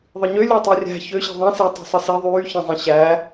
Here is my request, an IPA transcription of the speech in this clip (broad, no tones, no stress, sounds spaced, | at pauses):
ðˤ ɯ ɲ ø lʲ o tˤ i rʲ æ̤ ç ø ɕ i̤ ðˤ ẽ s e tˤ i̤ sˤ ɯ s i ðˤ yː ç ẽ zˤ ĩ ɕ æ